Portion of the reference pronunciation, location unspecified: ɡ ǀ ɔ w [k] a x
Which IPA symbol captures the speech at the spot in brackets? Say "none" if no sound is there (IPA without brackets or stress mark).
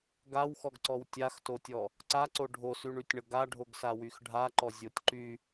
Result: tʲ